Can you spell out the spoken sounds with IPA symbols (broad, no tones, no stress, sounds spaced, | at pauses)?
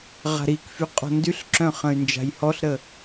ʁ a̤ ɾ i k f y qʼ ɔ̤ n d y ɬ ǁ œ̃ χ ə̃ y̯ n d͡ʒ a̤ j h ɔ ɬ ɾ ə